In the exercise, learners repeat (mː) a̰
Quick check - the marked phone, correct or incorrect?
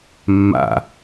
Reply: correct